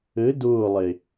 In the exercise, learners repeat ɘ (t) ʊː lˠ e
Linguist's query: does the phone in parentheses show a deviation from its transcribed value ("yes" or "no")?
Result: yes